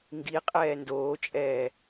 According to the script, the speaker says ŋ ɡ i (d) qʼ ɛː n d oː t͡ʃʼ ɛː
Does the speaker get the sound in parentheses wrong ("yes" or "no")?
yes